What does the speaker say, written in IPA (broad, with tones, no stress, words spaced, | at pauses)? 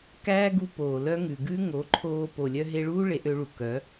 kæː˦ɡu˧ poː˨lœ˦ ŋʉ˨ɡʉ˦ ŋo˨˦ǃʰoː˧ po˧lʲœ˦ ɦe˧ɭuː˦ ɭe˧ʔø˧ɭu˨ kœ˨˦